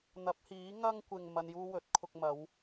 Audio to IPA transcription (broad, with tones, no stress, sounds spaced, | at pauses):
n̪ ɐ˨˥ p̚ h iː˨˥ ŋ ɐ˥ ŋ kʷ ɪ˨ ŋ m ɐ˧ n j uː˥ w ɵ˨˥ t̚ kʰ ʊ˧ k̚ m ɐ˨˥ w